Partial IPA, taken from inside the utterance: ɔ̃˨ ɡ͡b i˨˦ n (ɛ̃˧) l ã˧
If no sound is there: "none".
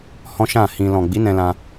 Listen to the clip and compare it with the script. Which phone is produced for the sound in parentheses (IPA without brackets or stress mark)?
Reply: ɛ̃˧